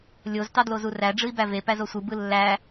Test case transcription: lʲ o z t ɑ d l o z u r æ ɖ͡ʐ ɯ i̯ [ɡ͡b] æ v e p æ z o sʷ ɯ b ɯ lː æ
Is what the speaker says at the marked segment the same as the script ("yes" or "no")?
no